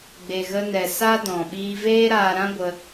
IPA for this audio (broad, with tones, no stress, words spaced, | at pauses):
ɡ͡be˨ɣə˧nɛ˨ sa˦dɔ̃˨ ɓiː˧veː˦ɾaː˧ɾã˦ ɡʷə˧